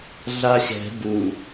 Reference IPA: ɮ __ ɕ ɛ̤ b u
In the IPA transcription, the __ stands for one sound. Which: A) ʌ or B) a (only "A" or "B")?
B